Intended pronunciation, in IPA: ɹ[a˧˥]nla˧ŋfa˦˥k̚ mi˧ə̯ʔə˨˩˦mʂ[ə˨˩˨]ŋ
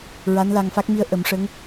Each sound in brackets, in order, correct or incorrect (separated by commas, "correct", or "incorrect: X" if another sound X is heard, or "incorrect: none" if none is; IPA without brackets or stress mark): correct, incorrect: ə˧˥